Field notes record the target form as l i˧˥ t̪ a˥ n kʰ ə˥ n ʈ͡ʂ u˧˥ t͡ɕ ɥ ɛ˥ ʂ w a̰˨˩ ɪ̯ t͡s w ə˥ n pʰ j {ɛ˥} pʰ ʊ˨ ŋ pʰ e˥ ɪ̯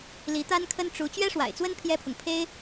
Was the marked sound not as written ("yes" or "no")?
no